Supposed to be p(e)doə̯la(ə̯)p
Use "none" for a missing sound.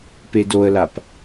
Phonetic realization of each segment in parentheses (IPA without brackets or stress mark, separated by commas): e, none